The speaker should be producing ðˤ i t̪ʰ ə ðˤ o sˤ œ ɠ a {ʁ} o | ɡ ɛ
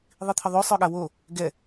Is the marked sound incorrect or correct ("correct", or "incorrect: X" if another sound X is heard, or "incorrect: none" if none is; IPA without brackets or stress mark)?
incorrect: w